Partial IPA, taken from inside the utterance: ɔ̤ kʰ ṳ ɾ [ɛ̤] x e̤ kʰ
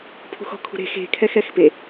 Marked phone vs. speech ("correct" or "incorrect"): incorrect